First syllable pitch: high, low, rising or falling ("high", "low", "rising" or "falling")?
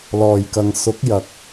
low